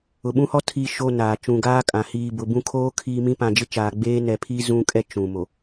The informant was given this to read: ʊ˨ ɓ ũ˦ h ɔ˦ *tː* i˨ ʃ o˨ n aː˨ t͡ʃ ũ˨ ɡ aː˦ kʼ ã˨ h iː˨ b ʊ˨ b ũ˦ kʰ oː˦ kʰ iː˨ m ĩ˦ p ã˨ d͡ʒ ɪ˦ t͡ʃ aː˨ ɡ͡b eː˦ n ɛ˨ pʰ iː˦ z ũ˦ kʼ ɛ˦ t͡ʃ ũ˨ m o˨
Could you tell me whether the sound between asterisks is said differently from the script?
yes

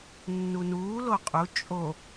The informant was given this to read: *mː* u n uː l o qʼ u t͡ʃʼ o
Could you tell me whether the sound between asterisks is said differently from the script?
yes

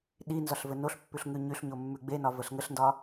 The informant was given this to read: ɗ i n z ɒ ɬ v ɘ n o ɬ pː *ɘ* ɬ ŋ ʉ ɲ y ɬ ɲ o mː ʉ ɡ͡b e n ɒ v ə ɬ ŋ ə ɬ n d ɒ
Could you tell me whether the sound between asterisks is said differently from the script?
yes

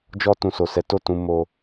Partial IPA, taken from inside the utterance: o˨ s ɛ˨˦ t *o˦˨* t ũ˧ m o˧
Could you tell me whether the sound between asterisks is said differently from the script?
no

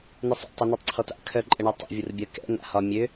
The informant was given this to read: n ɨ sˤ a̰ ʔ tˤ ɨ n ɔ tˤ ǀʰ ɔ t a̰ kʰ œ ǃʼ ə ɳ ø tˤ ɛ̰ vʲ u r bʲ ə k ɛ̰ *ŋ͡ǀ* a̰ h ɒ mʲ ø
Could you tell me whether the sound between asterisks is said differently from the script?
yes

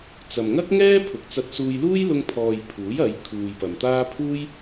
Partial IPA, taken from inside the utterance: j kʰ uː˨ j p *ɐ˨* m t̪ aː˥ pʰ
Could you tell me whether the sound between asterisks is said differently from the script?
no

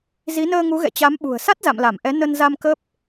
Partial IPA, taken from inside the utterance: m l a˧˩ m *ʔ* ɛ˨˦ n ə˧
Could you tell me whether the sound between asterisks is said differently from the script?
no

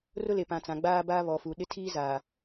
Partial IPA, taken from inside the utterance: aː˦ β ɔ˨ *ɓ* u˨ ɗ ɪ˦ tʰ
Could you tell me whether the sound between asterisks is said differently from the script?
yes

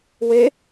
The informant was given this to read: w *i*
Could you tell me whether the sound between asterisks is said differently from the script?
yes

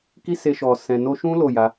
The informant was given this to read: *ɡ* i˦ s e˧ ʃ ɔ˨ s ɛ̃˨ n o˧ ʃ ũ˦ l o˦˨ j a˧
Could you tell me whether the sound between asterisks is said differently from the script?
yes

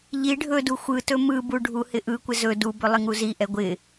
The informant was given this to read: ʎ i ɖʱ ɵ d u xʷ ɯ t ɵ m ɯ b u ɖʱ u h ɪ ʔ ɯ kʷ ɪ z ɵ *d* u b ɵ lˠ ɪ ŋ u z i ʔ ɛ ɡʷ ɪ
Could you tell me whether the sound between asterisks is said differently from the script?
no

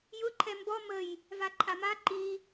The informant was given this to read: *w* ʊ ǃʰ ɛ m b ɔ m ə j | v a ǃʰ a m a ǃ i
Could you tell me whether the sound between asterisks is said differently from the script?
yes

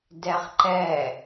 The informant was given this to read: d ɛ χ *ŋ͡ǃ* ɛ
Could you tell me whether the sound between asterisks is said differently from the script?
yes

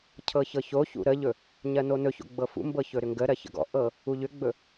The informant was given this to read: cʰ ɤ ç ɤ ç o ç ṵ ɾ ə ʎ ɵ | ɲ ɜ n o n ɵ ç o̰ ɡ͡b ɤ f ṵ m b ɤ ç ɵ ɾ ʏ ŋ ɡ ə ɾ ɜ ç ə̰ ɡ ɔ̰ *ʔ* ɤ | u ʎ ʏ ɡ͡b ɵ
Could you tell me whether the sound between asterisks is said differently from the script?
no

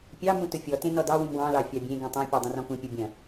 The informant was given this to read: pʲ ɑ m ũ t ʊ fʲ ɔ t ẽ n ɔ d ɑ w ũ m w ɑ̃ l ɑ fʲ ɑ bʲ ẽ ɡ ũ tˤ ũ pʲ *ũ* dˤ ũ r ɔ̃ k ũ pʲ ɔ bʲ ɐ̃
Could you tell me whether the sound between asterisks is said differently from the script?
yes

